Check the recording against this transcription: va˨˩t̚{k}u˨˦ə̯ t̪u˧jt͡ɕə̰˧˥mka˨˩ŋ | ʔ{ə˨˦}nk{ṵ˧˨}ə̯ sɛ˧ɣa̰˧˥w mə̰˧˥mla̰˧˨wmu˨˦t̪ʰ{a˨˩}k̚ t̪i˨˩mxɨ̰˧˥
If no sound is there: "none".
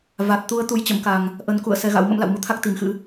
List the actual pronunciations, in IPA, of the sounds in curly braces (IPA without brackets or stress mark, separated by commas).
t̪, ə˨˦, ṵ˧˨, a˦˥